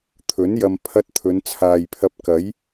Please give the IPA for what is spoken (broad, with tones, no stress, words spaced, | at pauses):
t̪ʰɵ˨˥n jɐ˧m pʰɐ˧t̚ t̪ʰɵ˨˧nt͡sʰaː˨jpʰɐ˧p̚ kɐ˨˥j